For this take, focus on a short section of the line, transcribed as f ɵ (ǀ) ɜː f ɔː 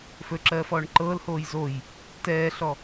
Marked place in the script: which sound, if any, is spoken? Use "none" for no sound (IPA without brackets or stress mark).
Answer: ǁ